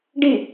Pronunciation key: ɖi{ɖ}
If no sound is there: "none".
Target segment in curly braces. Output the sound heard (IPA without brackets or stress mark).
none